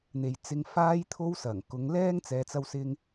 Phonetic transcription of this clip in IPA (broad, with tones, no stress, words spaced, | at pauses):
n̪e˨jt͡sɪ˧ŋ faː˧jt̪ʰo˧w sɐ˨˩ŋkʊ˨˧ŋlɛː˥ŋ t͡sɛː˧t͡sɐ˥wsɪ˥ŋ